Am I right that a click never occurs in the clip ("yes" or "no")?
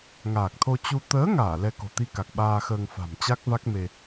yes